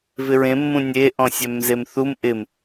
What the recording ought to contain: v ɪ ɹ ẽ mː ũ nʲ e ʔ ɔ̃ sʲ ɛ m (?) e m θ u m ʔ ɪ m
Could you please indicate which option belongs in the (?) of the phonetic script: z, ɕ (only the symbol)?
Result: z